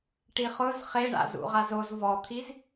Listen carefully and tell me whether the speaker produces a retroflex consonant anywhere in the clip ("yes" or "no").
yes